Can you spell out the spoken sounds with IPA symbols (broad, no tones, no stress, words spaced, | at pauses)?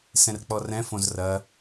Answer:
sɛ̃rk͡pɔrɛ̃ fõzrɐ